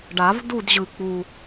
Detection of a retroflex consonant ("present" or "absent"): present